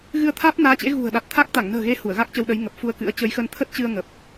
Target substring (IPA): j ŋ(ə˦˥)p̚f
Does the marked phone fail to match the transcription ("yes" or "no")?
yes